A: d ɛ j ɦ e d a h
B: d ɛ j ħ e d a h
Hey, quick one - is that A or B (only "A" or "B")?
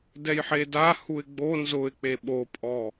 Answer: B